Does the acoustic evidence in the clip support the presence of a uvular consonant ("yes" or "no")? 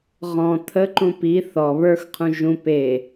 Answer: yes